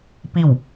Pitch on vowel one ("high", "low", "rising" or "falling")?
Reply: falling